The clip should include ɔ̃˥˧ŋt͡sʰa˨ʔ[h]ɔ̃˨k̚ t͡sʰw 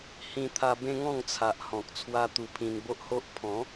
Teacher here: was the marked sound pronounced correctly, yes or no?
yes